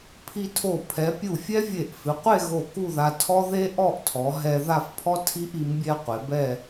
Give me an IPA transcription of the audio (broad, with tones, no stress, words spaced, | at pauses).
pʰi˧tʰo˧˩ pʰɛ˩˧pʲu˧˩ fʲɛ˥vʲe˧˩ʔfɪ˩˧ qʷe˥˧ ɣo˧˩ ku˥˧ða˧ tʰɔ˥ðe˥ ʔɔ˥˧ʔtʰɔ˩˧ ɦɛ˧ ða˥˧fpʰɔ˥ tʰi˥ʔ i˩˧mbʲɛ˧ qʷe˩˧bɛ˥˧